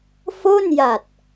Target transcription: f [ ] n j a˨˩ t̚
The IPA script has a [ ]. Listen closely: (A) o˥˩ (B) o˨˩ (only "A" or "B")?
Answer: A